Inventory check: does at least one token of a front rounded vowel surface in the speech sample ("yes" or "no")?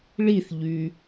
yes